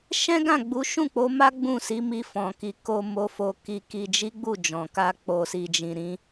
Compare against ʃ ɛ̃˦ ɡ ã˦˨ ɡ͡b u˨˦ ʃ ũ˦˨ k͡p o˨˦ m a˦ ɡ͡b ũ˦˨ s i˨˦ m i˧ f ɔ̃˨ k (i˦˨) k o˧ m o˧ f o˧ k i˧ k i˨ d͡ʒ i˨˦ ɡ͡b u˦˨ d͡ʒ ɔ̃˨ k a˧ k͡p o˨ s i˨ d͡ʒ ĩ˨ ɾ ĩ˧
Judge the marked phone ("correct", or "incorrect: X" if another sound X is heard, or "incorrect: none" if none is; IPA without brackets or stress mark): incorrect: i˨